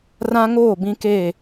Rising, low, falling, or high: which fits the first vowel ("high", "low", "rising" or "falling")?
high